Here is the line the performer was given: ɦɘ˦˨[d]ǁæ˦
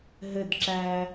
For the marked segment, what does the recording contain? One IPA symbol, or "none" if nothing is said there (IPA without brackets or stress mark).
d